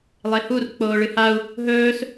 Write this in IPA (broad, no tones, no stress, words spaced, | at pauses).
lˠehur k͡poːɭɨhau̯ | ɦɵːs